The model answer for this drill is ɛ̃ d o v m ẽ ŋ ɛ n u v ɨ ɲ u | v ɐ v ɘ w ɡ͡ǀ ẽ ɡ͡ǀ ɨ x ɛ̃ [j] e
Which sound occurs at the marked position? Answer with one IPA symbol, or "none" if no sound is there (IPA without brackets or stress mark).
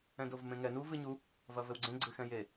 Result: j